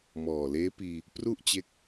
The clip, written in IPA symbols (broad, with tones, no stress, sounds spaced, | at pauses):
m ɔː˨˩ l eː˦˥ p iː˧ | p r u˥˩ ʔ t͡ɕ e˦˥ k̚